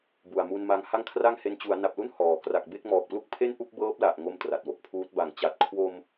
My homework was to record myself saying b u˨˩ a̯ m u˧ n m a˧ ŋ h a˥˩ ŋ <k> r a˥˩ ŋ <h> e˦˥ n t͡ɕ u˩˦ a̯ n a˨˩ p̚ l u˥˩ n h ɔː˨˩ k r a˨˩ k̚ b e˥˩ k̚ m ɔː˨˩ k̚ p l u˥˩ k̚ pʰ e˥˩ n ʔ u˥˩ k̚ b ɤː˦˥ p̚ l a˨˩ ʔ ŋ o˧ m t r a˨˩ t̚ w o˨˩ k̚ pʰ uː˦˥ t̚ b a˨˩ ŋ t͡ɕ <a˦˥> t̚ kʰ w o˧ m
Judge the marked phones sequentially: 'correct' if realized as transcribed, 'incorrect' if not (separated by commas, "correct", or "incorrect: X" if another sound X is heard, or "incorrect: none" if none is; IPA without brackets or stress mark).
incorrect: kʰ, correct, incorrect: a˨˩